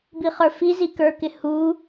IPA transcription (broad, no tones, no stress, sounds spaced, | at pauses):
b i χ ə˞ f i z i k ə˞ k ɪ h u